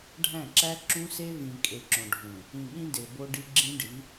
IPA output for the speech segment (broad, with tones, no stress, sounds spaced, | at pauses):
ɖʱ æ̃˦˨ ǁ æ˦ ǁ ũ˦ s e˦ v ĩ˨ kʼ e˨ ǁ õ˨ ɖʱ ũ˨ | ĩ˨ ɠ ĩ˦ d e˨ b o˦ ɖ i˦ ɡ͡ǁ ĩ˦ ɖ i˨˦